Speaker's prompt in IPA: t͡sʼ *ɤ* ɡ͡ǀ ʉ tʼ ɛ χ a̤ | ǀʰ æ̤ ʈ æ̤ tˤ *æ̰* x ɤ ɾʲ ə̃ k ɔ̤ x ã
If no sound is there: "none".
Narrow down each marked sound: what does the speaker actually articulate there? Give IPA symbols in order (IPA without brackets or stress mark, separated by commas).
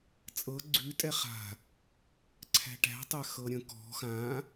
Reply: ɤ, æ